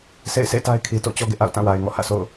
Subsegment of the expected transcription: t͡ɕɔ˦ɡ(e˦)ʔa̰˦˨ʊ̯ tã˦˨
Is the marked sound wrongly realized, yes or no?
yes